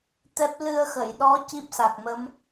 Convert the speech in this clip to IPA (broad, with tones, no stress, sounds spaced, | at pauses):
t̪ ɛ˦˥ p̚ l ɨ˧ ə̯ x ə˨˩˨ j ɗ ɔ˧˥ c i˦˥ p̚ s a˨˩ k̚ m ə˧˥ m